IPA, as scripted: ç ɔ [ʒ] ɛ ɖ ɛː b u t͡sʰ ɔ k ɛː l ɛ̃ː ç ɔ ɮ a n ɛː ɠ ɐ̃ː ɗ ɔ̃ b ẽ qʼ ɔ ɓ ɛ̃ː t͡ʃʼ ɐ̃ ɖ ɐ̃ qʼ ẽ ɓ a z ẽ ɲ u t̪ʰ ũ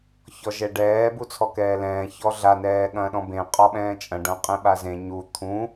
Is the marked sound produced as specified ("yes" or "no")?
yes